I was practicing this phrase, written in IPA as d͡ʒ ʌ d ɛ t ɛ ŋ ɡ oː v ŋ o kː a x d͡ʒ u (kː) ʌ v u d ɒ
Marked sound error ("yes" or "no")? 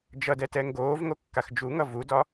yes